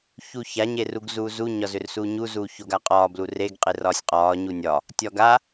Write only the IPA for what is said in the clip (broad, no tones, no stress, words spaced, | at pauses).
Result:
çuça ɲeruɡzuːzu ɲɒzʏrsuːɲu zuːçoɡaqʼɒː blureɡ qʼerɒːsʲqʼɒː ɲunʲɒ | tʲɒɡa